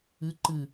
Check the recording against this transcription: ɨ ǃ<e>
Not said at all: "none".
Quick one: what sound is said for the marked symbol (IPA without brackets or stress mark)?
ɨ